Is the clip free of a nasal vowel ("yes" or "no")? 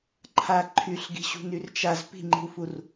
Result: yes